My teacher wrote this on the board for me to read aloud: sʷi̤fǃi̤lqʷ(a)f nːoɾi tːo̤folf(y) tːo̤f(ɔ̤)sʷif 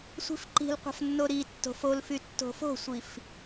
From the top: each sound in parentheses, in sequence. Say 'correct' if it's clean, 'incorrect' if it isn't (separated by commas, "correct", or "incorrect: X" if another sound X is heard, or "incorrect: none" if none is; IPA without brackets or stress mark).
incorrect: a̤, correct, incorrect: o̤